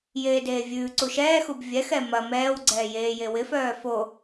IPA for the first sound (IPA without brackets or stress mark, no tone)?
j